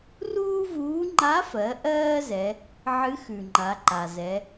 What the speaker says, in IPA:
ruː˥vuː˧˥ ŋ͡ǃa˧˥fɜ˩˧ ʔɜː˥zɛ˩˧ | ʕɨ˧˥ xʉ˩ŋ͡ǃa˩˧ǃa˩zɛ˩˧

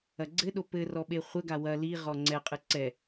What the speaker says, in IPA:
ɐɡ͡ǀɘɗo pɘrɔ ɓeχʷɘɡa wɐ liʁɔ ŋ͡ǀɛqʼɨ ǀɛ

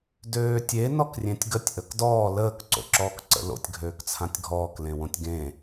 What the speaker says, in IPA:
døːtʲe nɔkrʲẽtʲɡətʲ ʔəkdɔː ləːk ǀo̰ǁɔːkǀə̰lo̰tʲ ɡʱøːkt͡sʰãtʲɡʱɔːk lẽwõtʲɡẽ

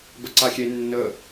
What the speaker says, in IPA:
bəǀaxʲe nːə

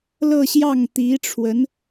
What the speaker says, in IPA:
lɤ˥˧ɕjɑ˥˩ŋt̪i˧˥ʈ͡ʂʰwə˧˥n

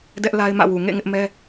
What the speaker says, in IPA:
dɛ˦ʔla˦ɪ̯mä̰˦˨wu˨ ŋḛ˦˨ ŋɪ˦ʔmɛ˦

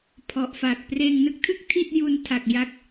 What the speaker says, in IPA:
pʰɔ˨˩ʔfa˨˩k̚ preː˧ŋnɯ˥˩k̚tʰɯ˥˩k̚ tʰi˥˩t̚ju˧ntʰa˨˩k̚ ja˦˥k̚

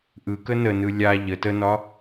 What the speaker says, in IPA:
ʔɯkə nənɯ lʲa ʎə tənɒ

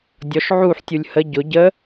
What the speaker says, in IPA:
dʲɔʃ ʕuħ tʲulʲhə ɟʊ ɟə

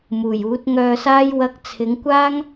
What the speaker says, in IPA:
muː˨˩juː˨˥t̚ŋœː˧saː˥j wɐ˧k̚ t͡sʰɪ˨˧ŋkʷaː˥ŋ

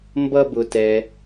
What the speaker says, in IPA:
mbʌ˥bʊ˦tɛ˦

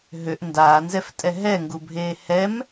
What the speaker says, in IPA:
ɦøʔ ndaːnzɛftʼɛ ɦɛŋɡubʱeː hɛm

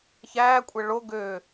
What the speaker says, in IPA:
çæːkʷʼɛ ɭo ɡø

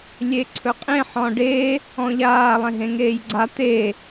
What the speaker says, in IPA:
lʲeǀʰɵqʼẽ ħɔ̃ɖe | ɔ̃ʎaː lˠẽɦẽŋeːjɡ͡ǀa t̪e

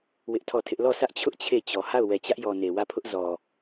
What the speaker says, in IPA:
wɪ˦ʔtʰɔ˦˨tʰɪ˦ʔ lɔ˦˨sʰä˦ʔt͡ɕʰʊ˦ʔ t͡ɕʰe˦˨t͡ɕɔ˨ ha˦˨ʊ̯wɛ˨t͡ɕä˦ʔ jɔ˨ne˨wä˦˨pʰʊ˦ʔ zɔ˨

